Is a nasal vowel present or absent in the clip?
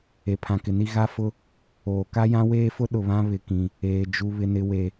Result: present